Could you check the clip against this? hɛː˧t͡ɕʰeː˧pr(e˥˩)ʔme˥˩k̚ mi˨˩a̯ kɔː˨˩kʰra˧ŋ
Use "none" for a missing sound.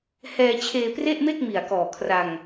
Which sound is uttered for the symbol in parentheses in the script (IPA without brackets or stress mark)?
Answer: e˥˩